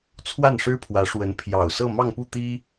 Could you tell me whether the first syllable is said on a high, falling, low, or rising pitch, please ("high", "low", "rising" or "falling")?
falling